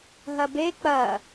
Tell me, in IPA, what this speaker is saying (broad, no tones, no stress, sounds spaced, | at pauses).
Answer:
ɦ ɐ b e k͡p ɐ